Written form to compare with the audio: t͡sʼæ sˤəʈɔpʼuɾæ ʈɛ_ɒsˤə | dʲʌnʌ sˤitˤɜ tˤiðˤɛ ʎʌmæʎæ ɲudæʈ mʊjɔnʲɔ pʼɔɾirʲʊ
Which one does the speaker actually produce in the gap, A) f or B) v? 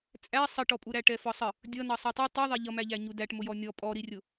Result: A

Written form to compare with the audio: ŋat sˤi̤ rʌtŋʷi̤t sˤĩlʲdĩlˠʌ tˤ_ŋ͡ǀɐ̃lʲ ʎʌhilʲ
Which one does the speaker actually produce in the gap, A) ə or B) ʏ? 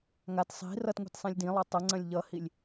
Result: A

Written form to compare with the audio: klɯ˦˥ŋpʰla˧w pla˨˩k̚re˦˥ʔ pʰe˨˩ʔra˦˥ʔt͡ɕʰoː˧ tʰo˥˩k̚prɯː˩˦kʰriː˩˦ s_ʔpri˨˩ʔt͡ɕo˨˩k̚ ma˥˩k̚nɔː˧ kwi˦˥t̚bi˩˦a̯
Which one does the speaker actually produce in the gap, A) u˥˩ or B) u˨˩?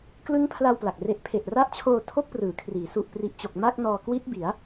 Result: B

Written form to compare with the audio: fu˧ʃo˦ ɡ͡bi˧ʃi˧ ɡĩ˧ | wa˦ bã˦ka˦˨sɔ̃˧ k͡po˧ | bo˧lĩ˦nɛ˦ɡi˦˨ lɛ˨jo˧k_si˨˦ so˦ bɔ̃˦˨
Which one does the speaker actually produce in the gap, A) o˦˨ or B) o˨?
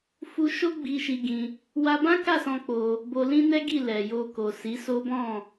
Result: B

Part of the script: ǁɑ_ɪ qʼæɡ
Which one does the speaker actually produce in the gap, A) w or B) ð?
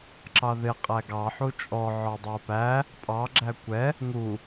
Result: B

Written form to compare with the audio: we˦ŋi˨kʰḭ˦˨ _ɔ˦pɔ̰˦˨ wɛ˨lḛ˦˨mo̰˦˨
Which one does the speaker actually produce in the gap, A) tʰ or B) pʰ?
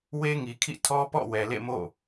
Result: A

